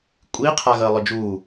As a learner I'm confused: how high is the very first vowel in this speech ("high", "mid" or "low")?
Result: high